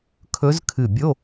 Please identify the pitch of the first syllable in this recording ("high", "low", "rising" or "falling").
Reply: rising